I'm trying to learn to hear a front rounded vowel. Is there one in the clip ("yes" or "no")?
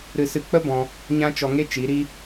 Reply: no